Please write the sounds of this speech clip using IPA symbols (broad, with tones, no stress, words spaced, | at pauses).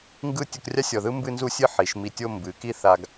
ŋɡɯ˥˧ tʲu˧krʲa˥sʲɔ˧˩ðɯ˥ mbɨ˥˧nzu˥˧sʲɨ˥˧ ħi˩˧ʃ mi˧˩tʲo˥˧ mbɨ˩˧ki˥˧ θa˧ɡ